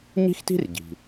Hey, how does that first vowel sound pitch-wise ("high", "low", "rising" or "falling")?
high